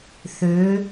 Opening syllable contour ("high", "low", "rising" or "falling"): rising